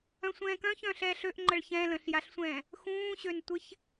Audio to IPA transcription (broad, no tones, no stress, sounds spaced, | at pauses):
œ̃ sʷ ɛ̃ː k œ̃ ç œ̃ː ɬ ɛː ɬ ø ʔ ŋ͡ǃ ə ɭ ç ɛ̃ l ə̃ ɬ j a ɬ sʷ ɛ̃ː | x ũː ɕ ø n tʷ ɪ ç